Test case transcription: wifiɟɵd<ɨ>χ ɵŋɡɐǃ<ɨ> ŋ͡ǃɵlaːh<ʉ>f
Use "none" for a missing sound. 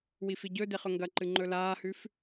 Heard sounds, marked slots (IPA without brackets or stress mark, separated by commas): e, ɨ, ʉ